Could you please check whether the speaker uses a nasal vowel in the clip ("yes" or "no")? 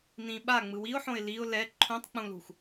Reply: yes